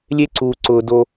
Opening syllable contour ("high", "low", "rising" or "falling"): high